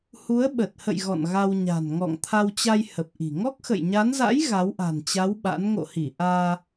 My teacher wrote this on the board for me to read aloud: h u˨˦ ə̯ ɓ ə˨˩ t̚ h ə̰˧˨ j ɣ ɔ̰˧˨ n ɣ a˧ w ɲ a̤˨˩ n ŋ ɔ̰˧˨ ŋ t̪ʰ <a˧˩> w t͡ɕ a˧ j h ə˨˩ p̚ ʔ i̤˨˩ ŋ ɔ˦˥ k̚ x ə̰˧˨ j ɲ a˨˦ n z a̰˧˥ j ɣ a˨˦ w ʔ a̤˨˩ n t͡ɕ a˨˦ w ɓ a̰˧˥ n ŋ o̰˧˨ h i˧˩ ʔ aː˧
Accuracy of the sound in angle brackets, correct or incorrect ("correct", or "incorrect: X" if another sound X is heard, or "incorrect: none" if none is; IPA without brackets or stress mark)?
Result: incorrect: a˧